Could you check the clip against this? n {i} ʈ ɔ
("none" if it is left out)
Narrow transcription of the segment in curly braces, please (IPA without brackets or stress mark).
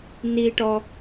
i